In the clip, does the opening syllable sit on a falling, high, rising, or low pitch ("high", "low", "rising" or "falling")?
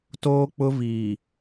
high